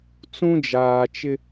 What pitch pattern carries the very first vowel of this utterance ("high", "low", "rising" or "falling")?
high